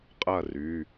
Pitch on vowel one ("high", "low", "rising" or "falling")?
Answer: falling